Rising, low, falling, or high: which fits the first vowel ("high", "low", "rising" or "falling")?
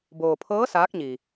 low